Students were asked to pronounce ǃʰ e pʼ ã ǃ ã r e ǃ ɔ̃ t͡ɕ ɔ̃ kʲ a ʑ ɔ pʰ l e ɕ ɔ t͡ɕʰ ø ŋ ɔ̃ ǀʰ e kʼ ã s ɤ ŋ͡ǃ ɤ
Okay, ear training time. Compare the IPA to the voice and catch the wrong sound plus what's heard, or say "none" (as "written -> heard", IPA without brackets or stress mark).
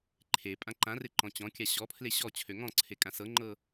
ʑ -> ɕ